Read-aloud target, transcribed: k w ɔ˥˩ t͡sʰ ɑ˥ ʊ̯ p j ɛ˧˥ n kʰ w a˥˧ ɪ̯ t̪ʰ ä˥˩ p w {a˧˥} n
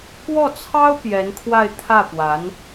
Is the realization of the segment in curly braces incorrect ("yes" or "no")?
no